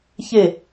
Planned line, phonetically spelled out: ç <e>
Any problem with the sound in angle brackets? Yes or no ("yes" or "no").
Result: no